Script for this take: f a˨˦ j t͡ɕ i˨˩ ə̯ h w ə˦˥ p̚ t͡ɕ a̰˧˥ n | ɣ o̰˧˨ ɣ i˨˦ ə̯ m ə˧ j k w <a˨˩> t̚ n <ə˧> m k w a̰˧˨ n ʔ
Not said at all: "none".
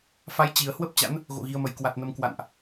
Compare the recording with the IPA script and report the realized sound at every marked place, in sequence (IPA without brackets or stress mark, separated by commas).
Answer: a˨˩, ə˧